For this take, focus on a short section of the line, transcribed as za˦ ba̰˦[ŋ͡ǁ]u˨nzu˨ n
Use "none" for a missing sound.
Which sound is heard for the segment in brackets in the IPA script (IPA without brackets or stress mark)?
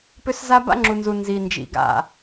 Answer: ŋ͡ǁ